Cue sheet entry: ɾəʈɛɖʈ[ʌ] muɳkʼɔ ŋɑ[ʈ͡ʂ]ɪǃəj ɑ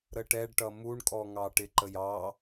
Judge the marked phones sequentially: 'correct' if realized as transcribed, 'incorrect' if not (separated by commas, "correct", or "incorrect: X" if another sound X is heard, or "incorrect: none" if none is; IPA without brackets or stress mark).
correct, incorrect: ʈ